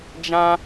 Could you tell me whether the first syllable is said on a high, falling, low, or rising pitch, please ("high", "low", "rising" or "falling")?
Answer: high